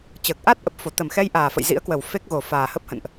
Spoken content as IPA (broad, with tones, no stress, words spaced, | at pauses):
t͡ɕəː˨˩k̚ʔa˦˥t̚ʔə˨˩p̚fo˧˩ t̪ə˨˩mxɛ˧j ʔaː˨˩fə̰˧˨jzḭ˧˥ə̯kwə˨˩w fe˦˥k̚ɣo˨˩ faː˨˩hə˦˥p̚hə̰˧˨nʔ